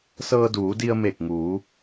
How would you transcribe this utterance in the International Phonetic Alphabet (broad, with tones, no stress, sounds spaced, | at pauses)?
s ɤː˧ d uː˩˧ d i˧ ə̯ m e˧˩ k̚ ŋ uː˩˧